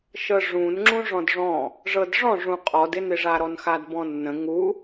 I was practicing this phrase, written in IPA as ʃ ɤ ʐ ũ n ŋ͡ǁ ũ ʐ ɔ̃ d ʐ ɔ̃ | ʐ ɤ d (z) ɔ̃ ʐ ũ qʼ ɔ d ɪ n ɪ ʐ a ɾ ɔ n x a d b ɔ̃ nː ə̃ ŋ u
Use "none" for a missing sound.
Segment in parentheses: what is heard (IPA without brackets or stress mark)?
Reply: ʐ